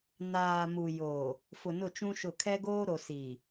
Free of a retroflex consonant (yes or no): yes